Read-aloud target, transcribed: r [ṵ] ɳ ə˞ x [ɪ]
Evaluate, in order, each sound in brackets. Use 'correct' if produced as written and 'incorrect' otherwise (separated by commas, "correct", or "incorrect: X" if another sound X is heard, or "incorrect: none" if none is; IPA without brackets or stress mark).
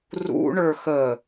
correct, incorrect: ə